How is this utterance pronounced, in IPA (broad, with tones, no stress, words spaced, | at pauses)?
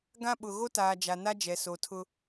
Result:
ɡã˦ɓʊ˨ ɣo˦taː˨ d͡ʒa˨na˦d͡ʒɛ˨ so˨tʰʊ˦